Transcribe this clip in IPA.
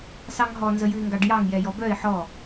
s ɑ ŋ ɦ ɔ n z ə j ɨ ɪ̯ ŋ ɡ ɑ ɖ j ɑ ŋ j ɛ j ɔ b œ ɪ̯ ħ ɔ

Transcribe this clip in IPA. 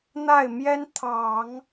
n̪ a˥˩ ɪ̯ m j ɛ˥ n t̪ʰ ɑ˨˩˦ ŋ

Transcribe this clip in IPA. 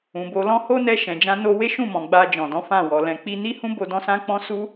ũ˨ b o˧ l ɔ̃˦ h o˦ n ɛ˧ ʃ ɛ̃˨ d͡ʒ ã˧ n o˧ w e˦ ʃ ũ˦˨ m ɔ̃˨ ɡ͡b a˧ d͡ʒ ɔ̃˨ d ɔ̃˨˦ f ã˦˨ w ɔ˨ l ɛ̃˨ k͡p i˧ n i˦ h ũ˦ b o˧ d ɔ̃˧ s ã˦ k͡p ɔ̃˦ s u˦

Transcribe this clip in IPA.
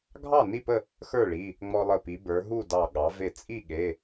ɡʱ ɑ˥˨ n i˥˨ p ə˥˨ | x ə˞˥˨ ɭ i˩˧˩ | ŋ͡m ɔ˦ lˠ ə˧˩ p i˩˧ b ə˞˩˧ ɦ u˥˨ d ɑ˧˩ ɠ ɑ˩˧ v e˧˩ t͡sʼ i˥˨ ɠ e˩˧˩

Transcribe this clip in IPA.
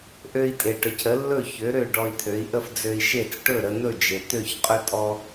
ʔ ø˧ i̯ tʼ e˩ ʈ ə˩ c ɾ ə˩˥ lː ɵ˥˩ ç ø˩˥ ɾ ø˥˩ ɖ ɔ˧ i̯ t̪ʰ ø˩˥ i̯ ʔ ə˥˩ f d͡z ø˧ i̯ ʃ e˥˩ t͡s ʈ ɵ˥˩ ɾ ə˧ n̪ ɵ˥˩ d͡ʒ e˩ t̪ ø˥˩ ç qʼ ɵ˥ tʼ ɔ˥

